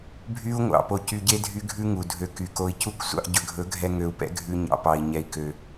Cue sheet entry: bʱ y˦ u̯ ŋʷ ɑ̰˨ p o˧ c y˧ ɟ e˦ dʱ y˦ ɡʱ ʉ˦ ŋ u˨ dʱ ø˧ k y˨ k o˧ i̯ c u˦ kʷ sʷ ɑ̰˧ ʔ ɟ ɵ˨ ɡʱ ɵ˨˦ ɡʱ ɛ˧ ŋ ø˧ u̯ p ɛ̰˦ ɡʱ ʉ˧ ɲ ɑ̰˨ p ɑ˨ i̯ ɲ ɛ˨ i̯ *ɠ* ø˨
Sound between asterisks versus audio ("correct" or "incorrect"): incorrect